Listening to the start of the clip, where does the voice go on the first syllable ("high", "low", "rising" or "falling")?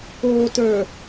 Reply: low